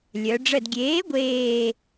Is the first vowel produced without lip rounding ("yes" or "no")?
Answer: no